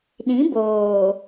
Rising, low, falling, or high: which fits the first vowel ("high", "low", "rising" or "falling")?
rising